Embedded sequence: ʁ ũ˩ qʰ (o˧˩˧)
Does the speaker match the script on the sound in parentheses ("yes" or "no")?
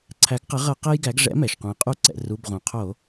yes